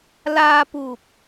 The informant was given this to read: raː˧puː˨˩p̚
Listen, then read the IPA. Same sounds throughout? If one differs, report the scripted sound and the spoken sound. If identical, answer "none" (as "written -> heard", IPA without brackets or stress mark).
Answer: r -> l